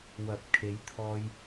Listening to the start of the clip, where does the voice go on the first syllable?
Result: low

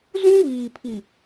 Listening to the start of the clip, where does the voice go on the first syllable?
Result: high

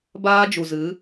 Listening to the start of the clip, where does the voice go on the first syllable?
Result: high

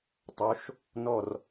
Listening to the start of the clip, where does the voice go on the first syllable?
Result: rising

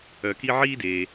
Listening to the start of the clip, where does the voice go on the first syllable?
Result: low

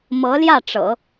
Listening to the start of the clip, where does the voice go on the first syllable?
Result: rising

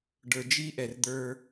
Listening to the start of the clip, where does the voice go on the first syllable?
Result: low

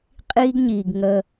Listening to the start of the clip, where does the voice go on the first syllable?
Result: high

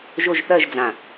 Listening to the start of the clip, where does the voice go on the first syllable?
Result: falling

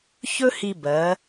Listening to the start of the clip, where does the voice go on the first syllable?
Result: high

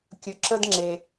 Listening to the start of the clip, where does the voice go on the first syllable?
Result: low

